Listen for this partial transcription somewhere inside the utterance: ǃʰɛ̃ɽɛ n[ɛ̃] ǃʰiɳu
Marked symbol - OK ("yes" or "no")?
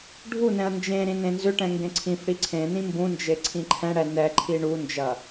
no